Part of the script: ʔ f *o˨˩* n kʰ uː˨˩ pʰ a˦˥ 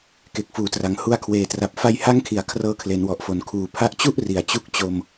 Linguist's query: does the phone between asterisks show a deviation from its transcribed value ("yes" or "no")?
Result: no